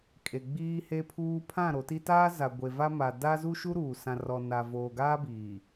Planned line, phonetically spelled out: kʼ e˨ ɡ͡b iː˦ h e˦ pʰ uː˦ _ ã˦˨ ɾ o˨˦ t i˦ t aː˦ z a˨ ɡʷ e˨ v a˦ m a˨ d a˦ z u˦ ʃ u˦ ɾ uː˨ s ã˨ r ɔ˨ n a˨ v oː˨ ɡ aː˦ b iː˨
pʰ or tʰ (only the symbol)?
pʰ